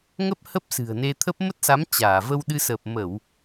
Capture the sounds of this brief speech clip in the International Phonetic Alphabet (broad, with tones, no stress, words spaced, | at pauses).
ŋə˦˥p̚ hə˦˥p̚sɨ̤˨˩ə̯ne˧t̪ʰə˦˥p̚ mə˦˥t̚sa˨˦m t͡ɕaː˧˩və˧wɗɨ˧ səː˨˩p̚mə˧˩˨w